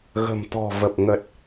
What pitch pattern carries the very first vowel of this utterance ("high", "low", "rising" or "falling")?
low